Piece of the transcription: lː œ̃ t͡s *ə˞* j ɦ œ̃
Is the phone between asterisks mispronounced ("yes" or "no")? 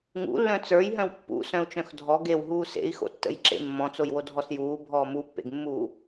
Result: no